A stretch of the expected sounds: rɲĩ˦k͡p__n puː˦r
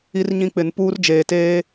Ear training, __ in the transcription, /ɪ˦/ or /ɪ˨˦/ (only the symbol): ɪ˨˦